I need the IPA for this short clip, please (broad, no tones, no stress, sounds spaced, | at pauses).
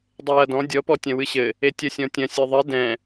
dˤ e j ɐ d ɔ̃ dʲ ɔ p ɔ tʲ ɐ̃ w ɨ ɕ ɘ | e tʲ ɐ sʲ ɔ̃ tʲ ɐ̃ sʲ ɨ ðˤ ɘ d ɛ̃